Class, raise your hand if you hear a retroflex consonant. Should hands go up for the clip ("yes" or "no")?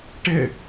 yes